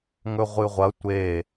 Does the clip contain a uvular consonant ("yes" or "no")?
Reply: yes